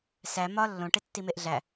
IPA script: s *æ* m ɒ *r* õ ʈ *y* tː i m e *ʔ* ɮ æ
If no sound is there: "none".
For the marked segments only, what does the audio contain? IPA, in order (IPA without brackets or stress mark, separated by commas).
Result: æ, lː, e, ʔ